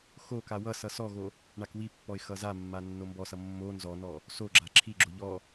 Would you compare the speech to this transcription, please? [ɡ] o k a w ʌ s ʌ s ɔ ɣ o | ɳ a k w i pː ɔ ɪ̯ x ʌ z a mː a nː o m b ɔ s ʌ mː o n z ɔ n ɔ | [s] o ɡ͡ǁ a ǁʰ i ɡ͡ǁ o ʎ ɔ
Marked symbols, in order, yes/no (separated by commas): no, yes